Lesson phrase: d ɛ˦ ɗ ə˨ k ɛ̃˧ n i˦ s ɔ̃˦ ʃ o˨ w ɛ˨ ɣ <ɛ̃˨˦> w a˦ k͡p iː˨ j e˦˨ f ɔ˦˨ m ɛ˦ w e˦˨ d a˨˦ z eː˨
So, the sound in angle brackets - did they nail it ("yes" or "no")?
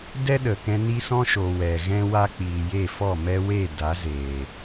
no